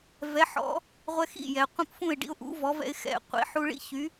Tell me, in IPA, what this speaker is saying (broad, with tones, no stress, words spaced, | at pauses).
vɛ˩˥ħɔ̰˩˥ | ʁʷɛ˧xḭ˥˩jɛ˩ qʷĩ˧pfũ˥˩ɪ̯ɖḭ˧ʊ̯ʔṵ˩˥ vɔ˩˥vɛ̰˧ɪ̯ xɛ̰˩ qʷḭ˩˥ħu˧ɭḭ˥çy˩˥